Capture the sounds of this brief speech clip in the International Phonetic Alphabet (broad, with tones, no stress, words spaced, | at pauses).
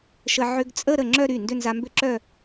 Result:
ʃə˧ ʕʏ˧ɡt͡sʼə˥˧ ɾə˥˩ŋ͡ǁœ˥˧ ɾy˥˩ ndʏ˥˧nza˧mbʏ˥˧ ǁœ˥˧